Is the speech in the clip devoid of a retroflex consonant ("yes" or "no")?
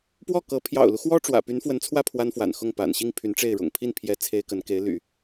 no